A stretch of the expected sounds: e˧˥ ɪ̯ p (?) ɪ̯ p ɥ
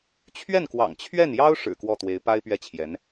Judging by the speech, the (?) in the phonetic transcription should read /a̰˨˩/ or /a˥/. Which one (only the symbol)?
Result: a˥